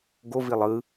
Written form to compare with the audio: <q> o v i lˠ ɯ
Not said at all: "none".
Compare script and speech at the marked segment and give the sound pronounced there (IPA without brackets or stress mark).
ɡ